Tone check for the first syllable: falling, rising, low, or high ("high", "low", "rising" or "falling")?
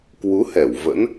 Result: rising